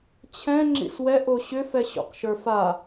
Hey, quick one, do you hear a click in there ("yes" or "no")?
yes